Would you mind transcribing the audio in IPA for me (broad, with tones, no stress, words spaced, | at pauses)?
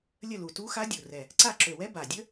lʲə˦˨lu˨˩tu˧˥xa˧˥ dʲu˨˩rɛ˨˩ | ǀa˦˨ ǁø˨˩wɛ˧˥ ba˨˩dʲə˧˥